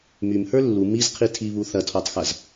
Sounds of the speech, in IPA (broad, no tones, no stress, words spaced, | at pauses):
mymhə˞ lːu mizqʰi tʰiβu θɐtʰɔtˤxɐz